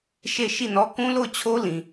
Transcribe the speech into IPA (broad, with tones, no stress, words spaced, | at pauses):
ʃe˦˨ʃi˦˨nɔ˦ kũ˦lo˦˨ʊ̯t͡ɕʰo˦lĩ˨